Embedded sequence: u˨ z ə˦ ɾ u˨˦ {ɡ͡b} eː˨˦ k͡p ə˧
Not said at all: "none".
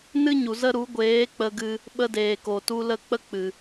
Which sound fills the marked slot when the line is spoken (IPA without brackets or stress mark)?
ɡʷ